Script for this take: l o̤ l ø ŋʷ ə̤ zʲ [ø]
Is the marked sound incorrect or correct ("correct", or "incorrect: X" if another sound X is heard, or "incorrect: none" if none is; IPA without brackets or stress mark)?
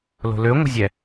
incorrect: ɛ